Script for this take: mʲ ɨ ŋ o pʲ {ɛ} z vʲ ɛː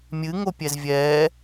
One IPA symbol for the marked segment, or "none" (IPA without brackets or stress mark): ɛ